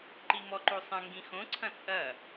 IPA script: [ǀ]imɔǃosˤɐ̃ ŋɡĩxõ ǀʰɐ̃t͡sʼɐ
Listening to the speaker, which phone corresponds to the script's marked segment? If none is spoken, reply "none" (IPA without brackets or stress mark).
ǃ